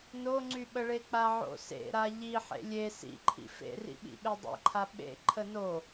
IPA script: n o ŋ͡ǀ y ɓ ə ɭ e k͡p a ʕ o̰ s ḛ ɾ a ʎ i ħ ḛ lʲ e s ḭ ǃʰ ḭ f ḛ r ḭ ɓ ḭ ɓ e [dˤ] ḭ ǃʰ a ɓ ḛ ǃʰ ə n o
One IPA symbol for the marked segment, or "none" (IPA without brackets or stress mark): dˤ